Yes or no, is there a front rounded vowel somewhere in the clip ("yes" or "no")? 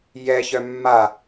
yes